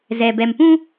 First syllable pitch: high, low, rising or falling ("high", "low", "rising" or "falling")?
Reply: low